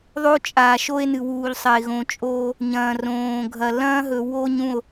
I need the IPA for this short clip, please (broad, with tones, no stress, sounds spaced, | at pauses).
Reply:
ðˤ o˦ t͡ʃʼ aː˨ ʃ o˦ e̯ n ɨ˨ w uː˨ ʎ sˤ ɐ˨ e̯ ɣ õ˨ t͡ʃʼ oː˦ | ɲ ɐ̃ː˨ r õː˨ ɡʱ ɐ˨ l ɐ̃ː˦ ɦ ɵ˨ w o˦ ɲ ũ˦˨ o̯